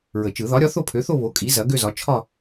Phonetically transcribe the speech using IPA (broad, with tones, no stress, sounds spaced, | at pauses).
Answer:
ɹ ə˨˩˦ t͡ʃ ɯ˨˩˦ ð ɒ˨˥ ɾʲ ɒ˨˥ θ o˥˧ pʰ ø˨˥ θ o˥˧ β o˨˥ kʼ i˨˥ z ɐ˨˥ ɡ ø˥˧ z ɒ˨˥ t͡ʃʰ ɒ˥˧